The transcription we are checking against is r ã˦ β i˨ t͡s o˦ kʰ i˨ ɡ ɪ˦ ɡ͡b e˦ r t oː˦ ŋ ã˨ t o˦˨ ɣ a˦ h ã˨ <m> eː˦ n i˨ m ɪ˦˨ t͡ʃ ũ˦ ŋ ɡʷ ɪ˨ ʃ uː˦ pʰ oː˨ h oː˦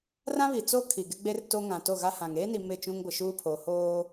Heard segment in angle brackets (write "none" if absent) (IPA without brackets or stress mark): ŋ